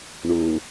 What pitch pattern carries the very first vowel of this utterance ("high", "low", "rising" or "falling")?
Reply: low